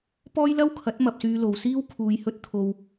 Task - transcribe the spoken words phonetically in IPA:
pɔː˥jlɐ˥wkʰɐ˨˥t̚ mɐ˧p̚syː˧ lo˨wsiː˥wkʰuː˨˧jhɵ˧t̚ t̪ʰo˨w

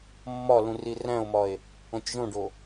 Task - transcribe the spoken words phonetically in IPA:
mːɒlũ riræ̃o̯mɒe̯ | õtʲʒõɖo

